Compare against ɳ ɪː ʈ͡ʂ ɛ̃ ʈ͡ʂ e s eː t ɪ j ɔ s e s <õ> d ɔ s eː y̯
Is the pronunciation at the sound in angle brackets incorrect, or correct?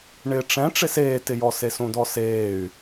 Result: incorrect